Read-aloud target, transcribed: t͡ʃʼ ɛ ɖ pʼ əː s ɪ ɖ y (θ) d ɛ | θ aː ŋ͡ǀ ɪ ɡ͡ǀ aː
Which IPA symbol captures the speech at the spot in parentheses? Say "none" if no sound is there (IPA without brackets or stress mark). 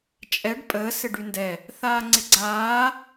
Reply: n